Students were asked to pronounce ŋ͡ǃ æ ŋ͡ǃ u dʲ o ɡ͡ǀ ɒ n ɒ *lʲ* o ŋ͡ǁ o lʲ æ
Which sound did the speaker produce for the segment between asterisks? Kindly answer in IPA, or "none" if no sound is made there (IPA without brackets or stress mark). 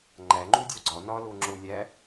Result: l